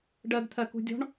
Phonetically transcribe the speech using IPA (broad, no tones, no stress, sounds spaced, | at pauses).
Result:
ɖ ɜ ɡ t̪ʰ ɜ k ṳ dʲ ɔ̤ ɳ